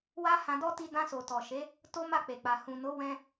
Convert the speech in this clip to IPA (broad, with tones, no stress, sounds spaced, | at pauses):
w a˦ h ã˧ d ɔ˦ t i˧ d ã˧ s o˨ t ɔ˨ ʃ e˨˦ | t o˦ m a˦˨ k͡p e˨ k͡p a˨ h ũ˨ n o˨˦ w ɛ̃˦